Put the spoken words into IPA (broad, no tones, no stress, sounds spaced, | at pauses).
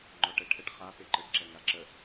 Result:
ŋ͡ǃ ɔ ʈ ɛ ʈʰ ə ʈ χ a p e ǃ ə ɖ ǁ ɛ ŋ a ǁ ə